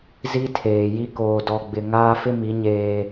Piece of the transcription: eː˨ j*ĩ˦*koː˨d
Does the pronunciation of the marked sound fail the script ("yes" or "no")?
yes